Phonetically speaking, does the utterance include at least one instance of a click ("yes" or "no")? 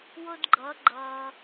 yes